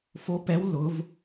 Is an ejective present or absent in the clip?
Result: absent